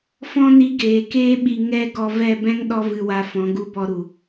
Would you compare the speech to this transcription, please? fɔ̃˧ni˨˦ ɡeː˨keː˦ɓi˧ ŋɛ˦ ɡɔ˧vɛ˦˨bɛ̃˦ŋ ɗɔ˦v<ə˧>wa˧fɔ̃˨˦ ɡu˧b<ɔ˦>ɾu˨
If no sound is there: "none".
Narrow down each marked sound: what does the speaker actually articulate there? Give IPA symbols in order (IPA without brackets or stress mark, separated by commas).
ɨ˧, ɔ˧